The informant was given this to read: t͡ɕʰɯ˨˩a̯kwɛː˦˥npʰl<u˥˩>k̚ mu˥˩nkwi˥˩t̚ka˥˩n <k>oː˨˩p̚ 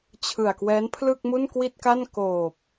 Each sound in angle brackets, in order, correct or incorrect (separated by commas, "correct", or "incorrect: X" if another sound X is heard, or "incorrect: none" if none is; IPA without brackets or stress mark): incorrect: ɯ˥˩, correct